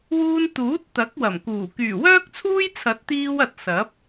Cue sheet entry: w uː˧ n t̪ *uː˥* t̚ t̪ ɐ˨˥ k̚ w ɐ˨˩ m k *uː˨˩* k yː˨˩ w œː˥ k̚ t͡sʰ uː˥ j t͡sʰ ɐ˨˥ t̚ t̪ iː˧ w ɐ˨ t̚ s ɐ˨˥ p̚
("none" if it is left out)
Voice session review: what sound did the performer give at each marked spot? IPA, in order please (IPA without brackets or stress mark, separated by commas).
uː˨˥, uː˨˩